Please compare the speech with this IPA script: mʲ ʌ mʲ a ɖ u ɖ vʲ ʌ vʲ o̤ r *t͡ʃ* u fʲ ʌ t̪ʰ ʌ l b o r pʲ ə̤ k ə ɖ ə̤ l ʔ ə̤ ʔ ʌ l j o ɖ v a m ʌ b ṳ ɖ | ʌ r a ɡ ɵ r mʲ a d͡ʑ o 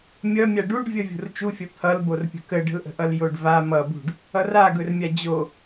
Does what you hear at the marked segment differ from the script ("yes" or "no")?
no